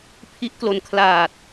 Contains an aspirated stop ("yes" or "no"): yes